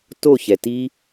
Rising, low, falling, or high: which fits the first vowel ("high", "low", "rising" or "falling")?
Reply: falling